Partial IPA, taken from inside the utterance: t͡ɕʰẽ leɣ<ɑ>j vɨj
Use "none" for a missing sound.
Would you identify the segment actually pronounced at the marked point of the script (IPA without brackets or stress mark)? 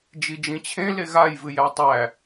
a